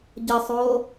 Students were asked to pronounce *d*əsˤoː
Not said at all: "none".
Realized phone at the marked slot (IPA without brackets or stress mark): ɟ